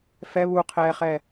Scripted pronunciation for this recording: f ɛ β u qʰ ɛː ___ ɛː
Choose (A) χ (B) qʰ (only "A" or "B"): A